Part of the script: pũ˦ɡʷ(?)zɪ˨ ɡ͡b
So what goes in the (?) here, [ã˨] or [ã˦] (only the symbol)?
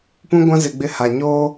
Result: ã˦